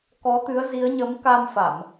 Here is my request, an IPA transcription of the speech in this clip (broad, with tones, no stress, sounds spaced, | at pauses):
k ɔ˨˦ t̪ ɨ˨˦ ə̯ z i˨˦ ə̯ ɲ ə˨˦ m k a˧ m f a˧˩˨ m